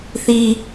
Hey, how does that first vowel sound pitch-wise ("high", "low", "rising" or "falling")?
high